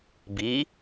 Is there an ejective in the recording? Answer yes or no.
no